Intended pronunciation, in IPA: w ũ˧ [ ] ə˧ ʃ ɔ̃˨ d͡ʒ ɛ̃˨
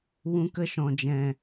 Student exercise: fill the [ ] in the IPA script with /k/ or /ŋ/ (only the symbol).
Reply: k